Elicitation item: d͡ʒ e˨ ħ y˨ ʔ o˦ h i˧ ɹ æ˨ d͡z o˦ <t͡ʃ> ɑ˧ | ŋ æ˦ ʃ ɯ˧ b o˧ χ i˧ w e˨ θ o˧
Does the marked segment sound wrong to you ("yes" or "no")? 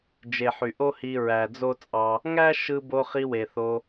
yes